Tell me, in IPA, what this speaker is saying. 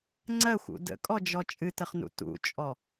ŋ͡ǀ ɜ xʷ ṵ d ə̰ kʼ ɔ d͡ʒ ɔ t͡ʃʼ ɨ t ə χ n ṵ t ṵ t͡ʃʼ ɔ

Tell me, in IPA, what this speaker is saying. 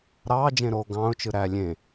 ɾ ɑː d͡ʒ ẽ ɾ oː ɡ ɑ̃ː ʊ̯ t͡ʃ ɯ ɾ æ lʲ ẽ

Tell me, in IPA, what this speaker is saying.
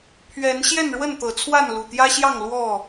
pʰ ɥ ɛ˨˦ n ɕ j ɛ˥˨ n ɻ w ə˥˨ n t̪ ɤ˨˩ t͡sʰ w a˥˨ n l u˨˩ t̪ j ä˦ ɕ j ɑ˥˨ ŋ l w ɔ˥˨

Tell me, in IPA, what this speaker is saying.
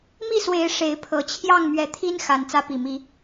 m i˥˨ s w e˨˦ ɪ̯ ʂ e˨˦ ɪ̯ pʰ ɤ˨˩ t͡ɕʰ j ɑ˥˨ ŋ m ɥ ɛ˨˦ t̪ʰ i˦ n x a˨˩ n t͡s ä˨˦ p i˨˩ m i˨˦

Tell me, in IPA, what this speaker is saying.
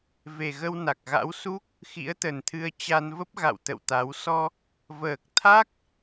v e˨˩ ɣ ə˧ w n a˨˩ k̚ ɣ a̰˧˥ w s u˦˥ k̚ | x ḭ˧˥ ə̯ t̪ ə˨˩ n t̪ʰ ɨ˧ ə̯ t͡ɕ a˧ n v ə˦˥ p̚ ɣ a̰˧˨ w t̪ ə̰˧˨ w t̪ a˨˦ w s ɔ˧ | v əː˨˩ k̚ t̪ʰ a˦˥ k̚

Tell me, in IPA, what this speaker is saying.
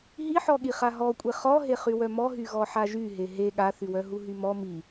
ɦ i ħ ɔ ɠ i χ a ɦ ɔ kʷʼ e χ ɔ ɦ e χ y w œ m ɔ ɦ y ɣ ɔ ħ a ʒ y ɦ e ɦ e ɠ a θ y w œ ɦ u ɦ y m ɔ m i

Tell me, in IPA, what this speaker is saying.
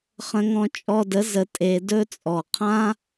χ ə̃˦ ŋ ɔ̃˦ t͡ʃʼ ɔ˧ d ə˨˦ z ə˨ tʼ e˧ d ɵ˦ t͡sʼ ɔ˨ qʰ ã˦

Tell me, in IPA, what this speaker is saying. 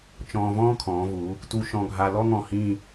t͡ʃ ɔ̃ː˧ v ɔ̃ː˥ kʰ ɔ̃ː˩˧ v u˩˧ | t u˧ ʃ ɔ̃˧ ɡʱ a˧ l ɔ˥ ŋ ɔ̃˧˩ h ĩ˥˧

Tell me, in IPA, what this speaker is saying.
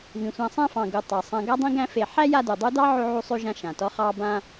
β ĩ˩ sʷ ã˨ sˤ ã˦ f ɑ̃˩ ɡ u˩ tˤ ɑ˩ sˤ ã˨ ɡ a˦ dˤ ĩ˦ ɡ æ̃˦ f e˨ ħ æ˥ j a˦ d u˩ dˤ u˦ d ɑ˥ ʕ ʉ˦ ʕ u˦ sˤ ʉ˦ ʒ ã˦ ʃ ã˩ t ɔ˦ χ ɑ˦ b ã˦

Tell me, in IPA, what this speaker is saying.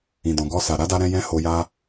ĩ˨ d ɔ̃˨ ɡ ɔ˧ s a˨ ɾ a˨˦ d a˧ ɾ ɛ̃˧ j ɛ̃˦ h o˧ j a˦

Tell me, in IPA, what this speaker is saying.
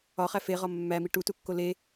ɒ χ æ f e ʁ ɒ mː æ m i ʈ u t u kː o l e

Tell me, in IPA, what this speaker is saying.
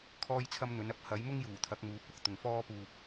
kʰ ɔː˥ j t͡sʰ ɐ˥ m n̪ ɵ˨˥ n ɐ˧ p̚ h ɐ˨˥ j m ʊ˥ ŋ j uː˨˩ t̪ʰ ɐ˨˥ k̚ m uː˨˥ p̚ w ʊ˧ k̚ t̪ ʊ˨ ŋ f ɔː˥ p uː˧ p̚

